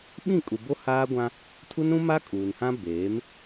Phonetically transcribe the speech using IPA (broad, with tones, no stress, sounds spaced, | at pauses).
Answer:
ɓ ĩ˦˨ kʼ u˨ b o˦ h aː˦ ɡʷ ã˦ | tʰ u˦ n ɾ ũ˦ m a˦ kʼ uː˨ n h ã˦ b eː˨˦ m